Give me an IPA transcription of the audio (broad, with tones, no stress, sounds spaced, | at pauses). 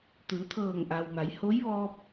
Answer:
t̪ ɯː˩˧ t̪ʰ ɤː˧˩ ŋ ʔ a˩ w m a˩˧ j h o˧˥ j ʋ ɔː˧ p̚